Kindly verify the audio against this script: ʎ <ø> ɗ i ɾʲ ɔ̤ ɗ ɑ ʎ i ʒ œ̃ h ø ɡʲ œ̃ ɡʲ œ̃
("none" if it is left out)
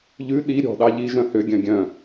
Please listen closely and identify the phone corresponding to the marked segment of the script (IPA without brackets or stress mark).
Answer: ʉ